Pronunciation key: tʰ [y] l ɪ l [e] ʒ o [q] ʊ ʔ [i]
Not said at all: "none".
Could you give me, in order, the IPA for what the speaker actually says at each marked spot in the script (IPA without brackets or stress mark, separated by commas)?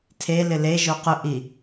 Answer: e, e, q, i